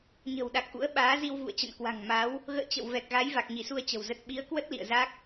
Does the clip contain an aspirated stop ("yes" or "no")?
no